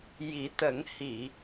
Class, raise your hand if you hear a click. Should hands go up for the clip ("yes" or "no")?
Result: no